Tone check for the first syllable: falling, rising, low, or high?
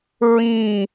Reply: falling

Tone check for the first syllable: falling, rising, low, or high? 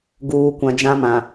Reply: low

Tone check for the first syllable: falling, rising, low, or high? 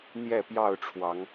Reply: falling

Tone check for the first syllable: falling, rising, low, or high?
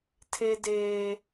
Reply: high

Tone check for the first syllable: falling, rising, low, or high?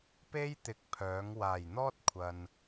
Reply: high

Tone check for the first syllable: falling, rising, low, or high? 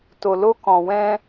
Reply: low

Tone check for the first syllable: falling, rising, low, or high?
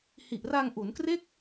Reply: low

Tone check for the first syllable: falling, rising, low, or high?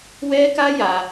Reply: high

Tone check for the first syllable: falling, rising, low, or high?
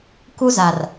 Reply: high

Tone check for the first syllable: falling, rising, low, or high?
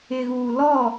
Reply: low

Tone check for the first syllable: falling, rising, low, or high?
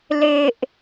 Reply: low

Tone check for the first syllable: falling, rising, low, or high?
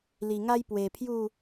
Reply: low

